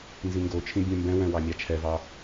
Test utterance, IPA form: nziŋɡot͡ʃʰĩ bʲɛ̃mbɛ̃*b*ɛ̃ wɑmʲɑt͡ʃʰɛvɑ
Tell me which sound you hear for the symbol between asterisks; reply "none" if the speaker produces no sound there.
w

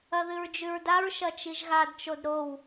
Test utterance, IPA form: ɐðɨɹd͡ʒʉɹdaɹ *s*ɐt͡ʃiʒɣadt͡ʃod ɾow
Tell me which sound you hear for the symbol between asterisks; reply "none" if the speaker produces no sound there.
ʃ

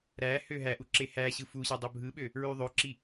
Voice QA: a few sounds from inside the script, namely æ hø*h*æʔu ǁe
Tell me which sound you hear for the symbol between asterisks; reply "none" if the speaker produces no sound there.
ɦ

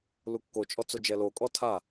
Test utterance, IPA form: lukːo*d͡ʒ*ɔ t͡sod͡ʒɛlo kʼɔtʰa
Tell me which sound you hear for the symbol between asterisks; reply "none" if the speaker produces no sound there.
t͡ʃʼ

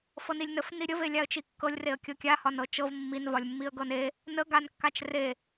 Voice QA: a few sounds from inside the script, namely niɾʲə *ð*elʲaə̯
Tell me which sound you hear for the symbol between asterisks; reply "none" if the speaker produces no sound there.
v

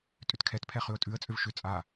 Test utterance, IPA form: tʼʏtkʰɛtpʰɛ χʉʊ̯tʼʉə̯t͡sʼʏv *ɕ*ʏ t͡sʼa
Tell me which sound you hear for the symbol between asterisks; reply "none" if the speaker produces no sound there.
ʃ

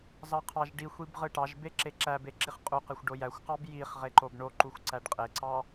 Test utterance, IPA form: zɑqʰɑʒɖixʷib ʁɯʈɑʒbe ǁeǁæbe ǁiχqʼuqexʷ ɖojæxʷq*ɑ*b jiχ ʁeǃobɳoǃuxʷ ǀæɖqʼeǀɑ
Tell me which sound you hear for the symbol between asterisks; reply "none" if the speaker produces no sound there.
ɑ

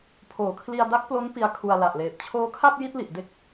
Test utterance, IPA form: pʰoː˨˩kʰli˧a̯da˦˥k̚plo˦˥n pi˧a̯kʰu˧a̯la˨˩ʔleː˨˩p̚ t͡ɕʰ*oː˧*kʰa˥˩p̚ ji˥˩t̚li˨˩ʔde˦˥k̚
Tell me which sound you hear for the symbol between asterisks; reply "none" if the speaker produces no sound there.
oː˦˥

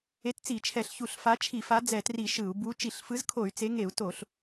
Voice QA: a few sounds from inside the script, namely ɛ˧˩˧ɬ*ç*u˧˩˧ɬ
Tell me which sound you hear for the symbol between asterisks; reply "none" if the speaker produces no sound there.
ç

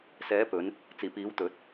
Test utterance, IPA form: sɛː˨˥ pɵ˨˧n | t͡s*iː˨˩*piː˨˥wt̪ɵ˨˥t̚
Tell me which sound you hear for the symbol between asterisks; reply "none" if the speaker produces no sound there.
iː˨˩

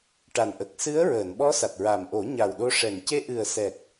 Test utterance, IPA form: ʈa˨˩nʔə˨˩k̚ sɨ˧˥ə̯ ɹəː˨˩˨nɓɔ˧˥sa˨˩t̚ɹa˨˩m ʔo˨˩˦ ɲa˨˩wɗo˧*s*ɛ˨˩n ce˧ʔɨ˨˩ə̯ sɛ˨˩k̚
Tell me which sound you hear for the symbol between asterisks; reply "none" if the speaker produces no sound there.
ʂ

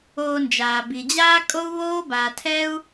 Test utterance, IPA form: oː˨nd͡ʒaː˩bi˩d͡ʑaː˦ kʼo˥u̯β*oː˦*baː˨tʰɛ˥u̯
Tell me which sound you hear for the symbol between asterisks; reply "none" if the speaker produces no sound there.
oː˥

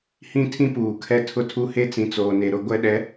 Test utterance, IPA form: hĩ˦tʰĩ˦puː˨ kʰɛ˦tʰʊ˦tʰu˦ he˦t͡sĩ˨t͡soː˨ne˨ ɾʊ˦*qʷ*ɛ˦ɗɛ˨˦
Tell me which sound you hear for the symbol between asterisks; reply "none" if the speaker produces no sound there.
ɡʷ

